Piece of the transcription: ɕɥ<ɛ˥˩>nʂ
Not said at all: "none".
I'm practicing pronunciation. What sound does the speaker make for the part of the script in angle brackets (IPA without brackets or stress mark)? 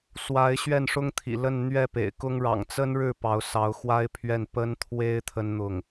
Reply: ɛ˥˩